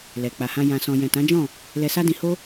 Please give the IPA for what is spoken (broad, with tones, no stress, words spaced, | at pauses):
lɛ˨ k͡pa˨hã˧ jã˨sɔ̃˨ jɛ̃˨tã˨˦d͡ʒɔ̃˦˨ | lɛ˧sa˦dĩ˧ho˦